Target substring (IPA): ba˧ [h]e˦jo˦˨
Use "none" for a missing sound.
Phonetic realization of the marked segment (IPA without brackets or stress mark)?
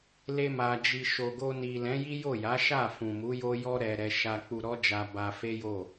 f